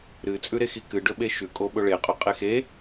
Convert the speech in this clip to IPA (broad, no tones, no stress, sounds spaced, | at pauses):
ɾ ɨ t͡sʼ ʉ ɾ e x i k ɨ ɖ ɵ ɓ e ʃ ʉ kʼ o ɓ ɵ ɭ e qʼ o qʼ e x e